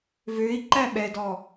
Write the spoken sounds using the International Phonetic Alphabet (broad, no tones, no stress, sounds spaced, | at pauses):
v ø i̯ ǃ æ ɓ ɛ d ɔ